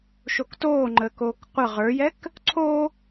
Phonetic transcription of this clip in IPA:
ʃ o k t oː ŋ͡ǃ əː k oː k qʷ ə ʁ ə˞ j ɛ k | ǀʰ o

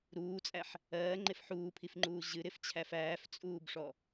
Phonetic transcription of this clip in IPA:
ɾ uː t͡sʼ æ ħ | ɜː ŋ͡ǃ e f ħ uː pʰ i f ŋ͡ǃ uː ʑ ɨ ɾ ɪ f t͡ɕʰ æ f æː f t͡sʼ uː b ʂ ɔ

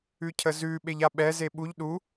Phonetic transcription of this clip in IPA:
ʉ cʰ ə z ʉ ɓ e ʎ a ɓ ɛ z e ɓ u ʎ ɗ u

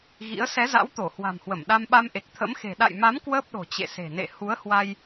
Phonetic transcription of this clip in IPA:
ɣ ḭ˧˥ ə̯ s ɛ˨˦ z a̰˧˥ w t̪ o˧˩ h w a̤˨˩ m h w ə˧˩ m ɗ a˧ m ɓ a˧ m ʔ e˨˩ k̚ t̪ʰ ə̰˧˥ m x e̤˨˩ ɗ a̰˧˨ j m a˨˦ m k w əː˦˥ p̚ ɗ o̤˨˩ t͡ɕ ḛ˧˨ s e̤˨˩ n ḛ˧˨ h u˨˦ ə̯ h w a˧ j

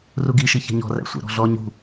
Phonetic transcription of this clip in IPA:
r u ɡ i ʃ i ç ɛ̤ ɲ ɔ̤ r æ̰ sʷ æ̰ ɾ ɔ̤ ɮ ɔ ɲ ṳ

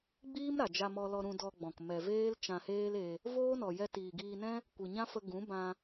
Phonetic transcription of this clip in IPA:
ɡ͡b iː˦ m ɾ a˨ d͡ʒ a˧ m ɔ˧ l ɔ˧ ɾ ũ˧ d ɔ˧ ɡ͡b ɔ̃˨ k m ɛ˨ v eː˦ l t͡ʃ ã˧ h eː˦ l e˧ | v oː˦ n ɔ˨ j ɛ˧ t iː˨ ɡ iː˧ n ɛ̃˦ | kʷ ɨ˨ ɲ ã˦ f ə˧ ɡ ũ˨˦ b ã˧

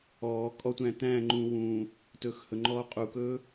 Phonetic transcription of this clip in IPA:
ɔː kʼ ɔ tʷ æ̃ː t æ̃ː ŋ͡ǃ ũː w ũː | t ɵː x h ɵ ŋ͡ǃ ɔː qʼ u k ɵː

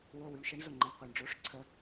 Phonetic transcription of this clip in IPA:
w ʊ˩ w y˩ ɳ ʃ ə˨˩˦ ɳ z ʊ˩ ŋ͡ǃ ə˩ ɳ qʷ e˩ ɳ ɖ͡ʐ o˨˩˦ ʂ ǀʰ ə˨˩˦

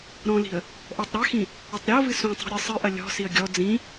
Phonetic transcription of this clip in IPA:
ɾ ɔ̃ l i̤ ə̯ | ʔ ɔ tˤ ɾ a x ĩ | ɘ tˤ ɾʲ o v ɨ s ũ tˤ ṳ ɾʲ ɘ sˤ ɨ ʔ ɐ lʲ ɔ̤ s i ə̯ ɡʲ ɔ d͡z ĩ

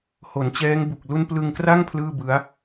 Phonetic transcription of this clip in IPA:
h o˩˦ n t͡ɕ ɛː˦˥ ŋ b u˨˩ k̚ l u˥˩ n p l ɯ˧ ŋ k r a˥˩ ŋ pʰ l ɯː˥˩ b ɯ˦˥ a̯

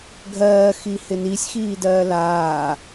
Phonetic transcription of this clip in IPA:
ɡʱ ɜː x i h ɪ n i sʲ x iː d ɜː l aː

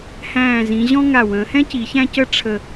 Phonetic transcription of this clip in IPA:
h æ̃ː˧˩ z ĩ˩˧ ʑ ɔ̃˥ ŋ a˧˩ w ə̃ː˩˧ h ɛ̃˥ c i˩˧ ç æ̃˥ c ə˥˧ ʈ͡ʂʰ ə˧˩

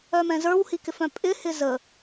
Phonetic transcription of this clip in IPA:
œ m ɛ̃ z ə˞ w h i k ɪ f œ̃ pʼ ɪ h ɪ z ə

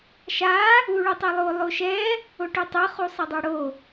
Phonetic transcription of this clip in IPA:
ʃ a | u ɭ u tˤ e lˠ o lˠ o ʃ ɛ | o ʈ u tˤ ɯ χ u sˤ ɛ dˤ u ɽ o

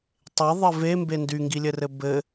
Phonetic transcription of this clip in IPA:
tˤ e ðˤ ɘ v e m b e n d y ŋ ɡ i lʲ ɘ r ɘ b ɘ

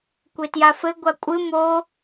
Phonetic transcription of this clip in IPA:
kʷ e t j a f ɘ ɡʷ a kʷʼ ɨ m o

